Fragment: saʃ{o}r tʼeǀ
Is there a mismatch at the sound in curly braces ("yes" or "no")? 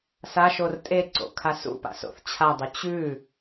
no